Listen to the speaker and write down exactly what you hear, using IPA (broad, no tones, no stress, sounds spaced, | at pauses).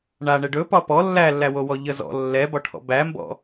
ɳ a ɳ ɛ ɖ ɵ p ɒ p ɔ lː æ lː æ w o w ɔ ʎ ə z ɔ̰ lː ɛ b ɒ ʈʰ ɔ̰ b æ m b ɔ̰